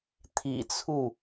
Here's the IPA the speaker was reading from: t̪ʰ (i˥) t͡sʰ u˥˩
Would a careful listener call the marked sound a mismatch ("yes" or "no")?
yes